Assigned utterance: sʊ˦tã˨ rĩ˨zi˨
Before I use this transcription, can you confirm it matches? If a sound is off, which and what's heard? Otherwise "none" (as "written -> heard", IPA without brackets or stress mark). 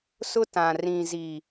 none